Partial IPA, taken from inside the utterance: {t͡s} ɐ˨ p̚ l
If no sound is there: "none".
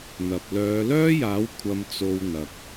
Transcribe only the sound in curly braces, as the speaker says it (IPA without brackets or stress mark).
n̪